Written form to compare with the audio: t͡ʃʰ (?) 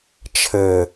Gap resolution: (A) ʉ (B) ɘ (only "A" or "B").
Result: B